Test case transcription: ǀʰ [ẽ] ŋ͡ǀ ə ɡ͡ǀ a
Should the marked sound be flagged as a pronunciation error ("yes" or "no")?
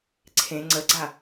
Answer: no